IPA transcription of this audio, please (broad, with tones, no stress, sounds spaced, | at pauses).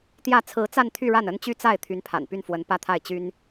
t̪ j ä˥˩ t͡sʰ ɹ̩˧˥ t͡s a˥˧ n t̪ʰ y˥˧ ɻ a˥˩ n ə˥ n t͡ɕ y˥ t͡s a˥˩ ɪ̯ t̪ʰ y˧˥ n pʰ a̰˨˩ n p y˥˩ n f w ə˧˥ n p ä˥˧ t̪ʰ a˥˩ ɪ̯ t͡ɕ y˥ n